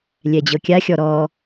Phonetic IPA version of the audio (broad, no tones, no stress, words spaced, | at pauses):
lʲɛd͡ʑɤkʲaxʲɔ ɾɔ